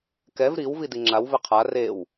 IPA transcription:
kɛv ɾiw vidiŋ͡ǁaw vɪqʰa rew

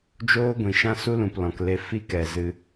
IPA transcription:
d͡ʒoː˦ɡʷĩ˨ʃã˦ su˦lũ˨p lɔ̃˨kle˧ fi˦kɛ˨ zɨ˧

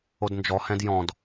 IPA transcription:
odnd͡ʒɔhɛ̃d jɔ̃d

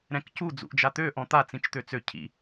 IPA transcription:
ɾɛ̃kcu d͡zṵʔd͡ʒat̪ø ʔɔ̃t̪a t͡sĩt͡ʃt̪øt͡sø cʰḭ

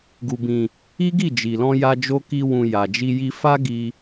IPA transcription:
ɡu˨bĩ˨ | i˦ɡi˦˨d͡ʒi˨lɔ̃˧ ja˧d͡ʒo˧ ki˧ wũ˨ ja˨d͡ʒi˧ji˧ fa˦ɡi˧

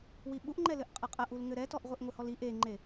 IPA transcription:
wiɓuʔŋ͡ǃɛlɘʔ qʼɐqʼɐʔ ulŋɘɾɛtɔʔ ʁʷeʔŋʷɘhɔli ʔeŋ͡ǃe

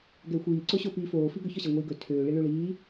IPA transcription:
ɡɛxʷiː ǀoɕopiːfoː fiɡɵç ɒɕɛŋʷiːɡɵ tʰøː ɭiɭøɭiː

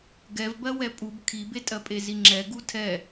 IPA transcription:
ɡɛvbɜ wɛpʼub kʰibetʼɜ pʼeziŋ͡ǁɛ ɡutʰɛ

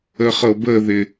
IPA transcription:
əχɤbəðɪ

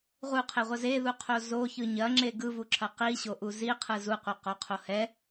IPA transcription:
ʁuqʰeʁʷɐ zeðuqʰo zoçɯ ɲɐŋ͡ǁe ɡɯvuǁʰɐ qiɕoʔu ziqʰɯ zuqʷɐqoqʰo hɛ

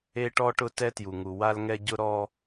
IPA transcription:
e˦ʈɔ˦ʈʊ˦ tɛ˦tju˨ŋu˨ wa˦lŋɛ˦ɟʊ˦ɾɔ˦

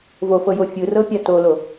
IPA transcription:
vofɤjo fʲɯrɤpʲa tolo

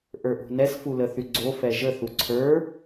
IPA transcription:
ʔə˞ʔo̤nɛs fuləθyɡ͡ǀo fɛʒə θuǀʰə˞

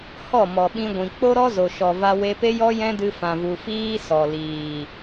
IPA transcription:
hɔ˦˨mɔ˨ ɓĩ˧ɡʷĩ˨ k͡po˦ɾɔ˦zo˨ʃɔ˨ va˧we˧pe˦jɔ˦ jɛ̃˦dɨ˧fã˨vu˨ fiː˦sɔ˨ liː˨

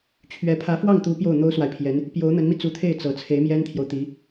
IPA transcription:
t͡ɕʰɥɛ˧˥ pʰä˧˥fwɑ˥˩ŋt̪u˧˥ pjo˥˩ʊ̯n̪o˥ʊ̯swa˨ɪ̯pʰjɛ˧˥n | pjo˧˥ʊ̯n̪ə˧˥nmi˧ t͡su˧˥t̪ʰe˥˩ɪ̯ t͡sɤ˨˩ t͡sʰe˧˥ɪ̯mjɛ˥nt̪ʰjo˨ʊ̯t̪i˧˥

